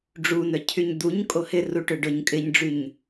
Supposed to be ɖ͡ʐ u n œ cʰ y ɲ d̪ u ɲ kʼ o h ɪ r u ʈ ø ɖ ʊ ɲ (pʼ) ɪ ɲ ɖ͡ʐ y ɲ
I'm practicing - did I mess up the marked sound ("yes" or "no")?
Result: yes